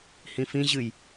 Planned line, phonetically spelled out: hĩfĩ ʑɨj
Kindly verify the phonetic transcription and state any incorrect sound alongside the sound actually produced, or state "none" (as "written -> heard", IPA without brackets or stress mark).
none